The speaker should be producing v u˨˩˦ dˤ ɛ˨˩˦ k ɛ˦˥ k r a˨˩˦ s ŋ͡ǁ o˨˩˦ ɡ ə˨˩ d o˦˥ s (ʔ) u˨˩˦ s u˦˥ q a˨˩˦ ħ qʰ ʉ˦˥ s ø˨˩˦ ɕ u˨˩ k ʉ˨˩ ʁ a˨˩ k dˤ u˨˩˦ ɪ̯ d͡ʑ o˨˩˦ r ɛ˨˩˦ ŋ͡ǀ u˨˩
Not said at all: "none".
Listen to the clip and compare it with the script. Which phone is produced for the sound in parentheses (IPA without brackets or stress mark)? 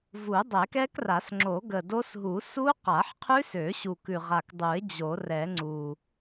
ɦ